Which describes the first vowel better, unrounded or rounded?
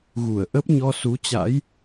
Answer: rounded